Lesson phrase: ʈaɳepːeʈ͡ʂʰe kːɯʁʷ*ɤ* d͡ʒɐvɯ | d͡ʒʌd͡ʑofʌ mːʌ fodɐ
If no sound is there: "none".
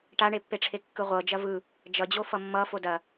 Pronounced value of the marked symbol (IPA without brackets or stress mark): ɤ